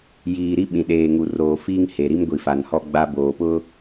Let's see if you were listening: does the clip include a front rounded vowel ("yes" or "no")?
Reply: no